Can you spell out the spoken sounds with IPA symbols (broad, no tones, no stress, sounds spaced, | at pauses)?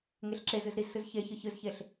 ŋ e ɬ ǁ e z ɨ z ɾ i z s ɨ z ç e ç ɨ ç ɨ z ç e ɬ